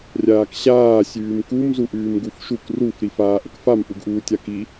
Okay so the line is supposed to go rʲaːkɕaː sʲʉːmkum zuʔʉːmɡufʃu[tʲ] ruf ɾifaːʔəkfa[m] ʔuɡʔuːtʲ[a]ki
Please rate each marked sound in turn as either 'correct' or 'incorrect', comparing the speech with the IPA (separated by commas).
incorrect, correct, correct